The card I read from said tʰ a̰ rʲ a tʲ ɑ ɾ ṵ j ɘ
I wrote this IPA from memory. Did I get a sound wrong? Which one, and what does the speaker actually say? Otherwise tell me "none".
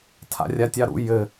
none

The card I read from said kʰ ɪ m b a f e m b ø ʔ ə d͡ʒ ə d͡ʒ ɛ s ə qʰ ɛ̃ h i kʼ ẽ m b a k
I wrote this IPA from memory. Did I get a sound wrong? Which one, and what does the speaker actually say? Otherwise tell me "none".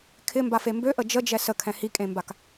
qʰ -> kʰ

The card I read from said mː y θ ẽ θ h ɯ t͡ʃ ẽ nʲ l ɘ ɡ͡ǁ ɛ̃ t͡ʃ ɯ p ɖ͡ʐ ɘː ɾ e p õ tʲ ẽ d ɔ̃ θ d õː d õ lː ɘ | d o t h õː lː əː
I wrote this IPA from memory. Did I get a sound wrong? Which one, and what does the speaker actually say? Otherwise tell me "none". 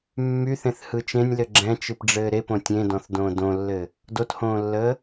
none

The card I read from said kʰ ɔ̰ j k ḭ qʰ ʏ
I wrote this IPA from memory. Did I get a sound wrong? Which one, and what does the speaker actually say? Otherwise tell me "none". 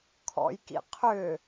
none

